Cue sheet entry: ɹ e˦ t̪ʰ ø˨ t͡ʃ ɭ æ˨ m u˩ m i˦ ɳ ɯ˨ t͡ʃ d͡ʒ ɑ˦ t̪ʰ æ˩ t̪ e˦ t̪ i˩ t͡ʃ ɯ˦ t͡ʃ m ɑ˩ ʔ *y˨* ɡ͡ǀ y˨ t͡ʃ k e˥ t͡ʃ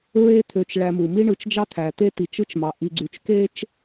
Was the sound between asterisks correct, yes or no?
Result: no